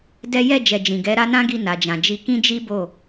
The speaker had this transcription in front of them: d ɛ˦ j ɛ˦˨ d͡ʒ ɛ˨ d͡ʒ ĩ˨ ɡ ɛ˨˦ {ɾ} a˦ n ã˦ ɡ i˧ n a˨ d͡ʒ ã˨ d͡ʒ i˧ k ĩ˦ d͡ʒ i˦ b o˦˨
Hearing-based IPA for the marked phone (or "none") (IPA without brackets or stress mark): ɾ